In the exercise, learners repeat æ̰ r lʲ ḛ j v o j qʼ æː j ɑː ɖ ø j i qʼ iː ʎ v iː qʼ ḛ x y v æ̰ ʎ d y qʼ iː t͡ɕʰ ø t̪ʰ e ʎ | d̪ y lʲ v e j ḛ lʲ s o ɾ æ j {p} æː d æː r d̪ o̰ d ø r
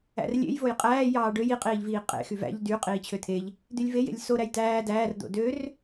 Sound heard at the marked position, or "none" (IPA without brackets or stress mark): t